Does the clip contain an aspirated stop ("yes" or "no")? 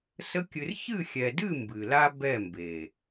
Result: no